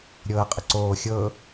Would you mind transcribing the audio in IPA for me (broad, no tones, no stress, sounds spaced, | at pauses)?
ɾʲ ɤː qʼ ə ǀ oː xʲ ɤ